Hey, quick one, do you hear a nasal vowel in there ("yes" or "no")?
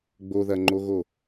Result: no